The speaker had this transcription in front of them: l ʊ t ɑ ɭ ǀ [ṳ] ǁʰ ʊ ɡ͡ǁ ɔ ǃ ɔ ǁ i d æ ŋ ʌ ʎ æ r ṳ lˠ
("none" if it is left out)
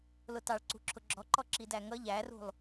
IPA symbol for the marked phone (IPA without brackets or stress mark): ṳ